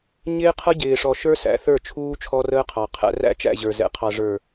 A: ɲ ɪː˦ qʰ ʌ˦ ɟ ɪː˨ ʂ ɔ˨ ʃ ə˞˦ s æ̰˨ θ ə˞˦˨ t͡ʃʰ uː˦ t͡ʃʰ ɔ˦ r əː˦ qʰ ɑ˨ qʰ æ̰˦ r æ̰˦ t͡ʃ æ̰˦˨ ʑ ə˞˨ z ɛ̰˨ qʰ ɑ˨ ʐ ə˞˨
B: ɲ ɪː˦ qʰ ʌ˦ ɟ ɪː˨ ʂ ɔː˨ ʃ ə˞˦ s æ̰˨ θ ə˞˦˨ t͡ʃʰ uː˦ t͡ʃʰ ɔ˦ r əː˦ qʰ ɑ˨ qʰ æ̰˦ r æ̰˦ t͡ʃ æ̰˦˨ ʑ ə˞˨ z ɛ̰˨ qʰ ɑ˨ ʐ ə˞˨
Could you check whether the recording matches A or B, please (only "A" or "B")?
A